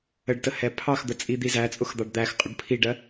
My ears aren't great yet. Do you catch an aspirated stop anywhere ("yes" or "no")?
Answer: yes